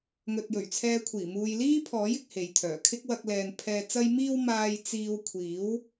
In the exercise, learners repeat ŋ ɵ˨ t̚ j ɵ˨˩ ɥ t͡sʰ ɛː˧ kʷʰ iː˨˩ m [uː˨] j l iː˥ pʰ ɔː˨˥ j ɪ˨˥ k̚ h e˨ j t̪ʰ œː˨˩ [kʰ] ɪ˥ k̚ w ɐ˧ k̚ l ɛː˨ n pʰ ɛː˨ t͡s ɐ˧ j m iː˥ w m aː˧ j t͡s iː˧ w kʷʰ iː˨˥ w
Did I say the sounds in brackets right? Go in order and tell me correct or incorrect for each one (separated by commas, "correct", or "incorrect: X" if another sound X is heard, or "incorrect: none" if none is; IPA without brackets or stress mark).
correct, correct